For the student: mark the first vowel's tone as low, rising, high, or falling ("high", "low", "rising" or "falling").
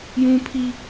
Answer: high